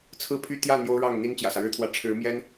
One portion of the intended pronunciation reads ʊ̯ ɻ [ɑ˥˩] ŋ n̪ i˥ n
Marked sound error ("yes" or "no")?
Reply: no